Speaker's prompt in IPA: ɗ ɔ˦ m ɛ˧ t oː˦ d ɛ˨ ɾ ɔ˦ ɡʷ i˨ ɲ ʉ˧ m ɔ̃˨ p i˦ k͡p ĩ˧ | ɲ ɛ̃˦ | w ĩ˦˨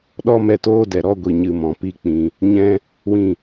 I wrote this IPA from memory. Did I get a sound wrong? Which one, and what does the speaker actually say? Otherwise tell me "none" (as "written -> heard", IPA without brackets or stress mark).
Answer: ʉ˧ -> ɨ˧